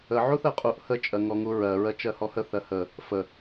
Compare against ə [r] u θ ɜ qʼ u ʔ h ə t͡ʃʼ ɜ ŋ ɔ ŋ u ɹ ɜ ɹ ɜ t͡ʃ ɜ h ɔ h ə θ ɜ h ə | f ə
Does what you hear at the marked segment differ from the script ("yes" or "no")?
yes